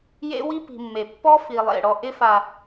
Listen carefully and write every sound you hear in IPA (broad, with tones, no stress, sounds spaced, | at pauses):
j ḛ˦ w i˦ p i̤˨ mː e˨ pː ɔ˦ f i˨ lˠ ḛ˨ ɽ ɔ˨ ʔ ɪ˦ f a˨